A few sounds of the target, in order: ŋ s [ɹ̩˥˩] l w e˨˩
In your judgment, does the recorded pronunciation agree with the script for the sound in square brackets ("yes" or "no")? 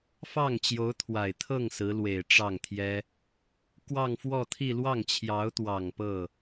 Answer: no